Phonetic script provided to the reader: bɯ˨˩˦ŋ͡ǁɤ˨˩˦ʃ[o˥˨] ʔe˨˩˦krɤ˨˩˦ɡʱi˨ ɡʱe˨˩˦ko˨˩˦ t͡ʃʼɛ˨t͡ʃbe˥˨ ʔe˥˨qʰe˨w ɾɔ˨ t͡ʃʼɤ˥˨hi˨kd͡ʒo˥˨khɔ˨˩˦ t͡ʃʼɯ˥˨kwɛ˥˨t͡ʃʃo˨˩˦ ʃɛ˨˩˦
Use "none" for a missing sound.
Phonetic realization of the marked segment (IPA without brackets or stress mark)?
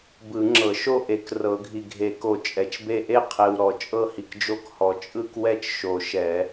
o˥˨